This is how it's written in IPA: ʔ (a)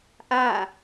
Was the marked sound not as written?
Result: no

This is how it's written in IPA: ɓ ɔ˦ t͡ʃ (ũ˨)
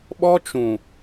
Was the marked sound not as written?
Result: no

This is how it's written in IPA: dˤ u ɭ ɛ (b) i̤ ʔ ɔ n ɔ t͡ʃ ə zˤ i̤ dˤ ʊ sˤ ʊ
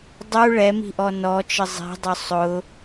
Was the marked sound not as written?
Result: yes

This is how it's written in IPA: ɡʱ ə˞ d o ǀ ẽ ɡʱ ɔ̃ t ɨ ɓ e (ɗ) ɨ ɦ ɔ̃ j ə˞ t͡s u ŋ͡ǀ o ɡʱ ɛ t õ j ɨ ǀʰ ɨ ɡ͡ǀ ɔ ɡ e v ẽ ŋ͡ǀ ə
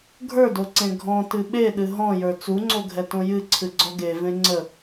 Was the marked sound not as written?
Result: no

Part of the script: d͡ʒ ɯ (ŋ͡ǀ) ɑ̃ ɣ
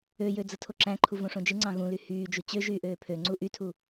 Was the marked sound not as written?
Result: no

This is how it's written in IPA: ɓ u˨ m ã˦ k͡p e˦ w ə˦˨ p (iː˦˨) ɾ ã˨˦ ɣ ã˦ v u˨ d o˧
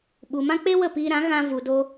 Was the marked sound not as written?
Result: yes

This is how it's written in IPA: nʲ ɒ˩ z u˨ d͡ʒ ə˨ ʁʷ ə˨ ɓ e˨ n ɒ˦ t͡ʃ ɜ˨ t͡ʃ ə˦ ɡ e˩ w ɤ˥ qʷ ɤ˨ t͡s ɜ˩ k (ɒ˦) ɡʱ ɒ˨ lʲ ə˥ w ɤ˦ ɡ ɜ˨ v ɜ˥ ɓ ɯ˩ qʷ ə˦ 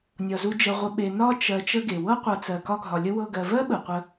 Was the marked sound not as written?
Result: no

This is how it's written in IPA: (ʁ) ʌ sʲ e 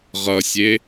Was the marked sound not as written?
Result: no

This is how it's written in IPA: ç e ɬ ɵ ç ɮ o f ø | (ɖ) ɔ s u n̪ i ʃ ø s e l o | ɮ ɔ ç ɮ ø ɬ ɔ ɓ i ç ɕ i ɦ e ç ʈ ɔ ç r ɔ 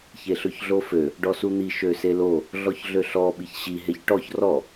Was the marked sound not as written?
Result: no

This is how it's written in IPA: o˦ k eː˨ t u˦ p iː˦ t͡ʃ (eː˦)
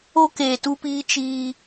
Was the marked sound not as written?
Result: yes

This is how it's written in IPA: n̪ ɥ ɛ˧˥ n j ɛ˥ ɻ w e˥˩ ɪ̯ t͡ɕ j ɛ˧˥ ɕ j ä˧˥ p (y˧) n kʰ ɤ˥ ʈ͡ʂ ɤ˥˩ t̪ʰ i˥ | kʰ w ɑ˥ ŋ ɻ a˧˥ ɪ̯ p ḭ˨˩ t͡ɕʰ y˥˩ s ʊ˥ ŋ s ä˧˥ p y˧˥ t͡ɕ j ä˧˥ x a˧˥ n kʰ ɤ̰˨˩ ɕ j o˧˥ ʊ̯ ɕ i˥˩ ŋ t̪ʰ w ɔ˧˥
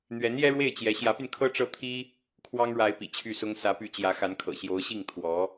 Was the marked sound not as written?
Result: no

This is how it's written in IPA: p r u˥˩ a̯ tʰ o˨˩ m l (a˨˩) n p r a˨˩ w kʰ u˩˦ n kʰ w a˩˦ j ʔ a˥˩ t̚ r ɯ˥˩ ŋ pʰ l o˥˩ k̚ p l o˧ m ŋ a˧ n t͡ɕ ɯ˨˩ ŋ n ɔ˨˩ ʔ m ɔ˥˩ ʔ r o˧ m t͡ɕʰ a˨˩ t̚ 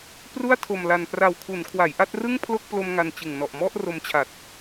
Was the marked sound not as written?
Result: no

